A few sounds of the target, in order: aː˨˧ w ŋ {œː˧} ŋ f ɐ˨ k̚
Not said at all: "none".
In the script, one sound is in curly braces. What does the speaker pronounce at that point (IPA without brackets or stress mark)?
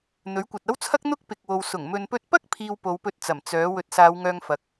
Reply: œː˧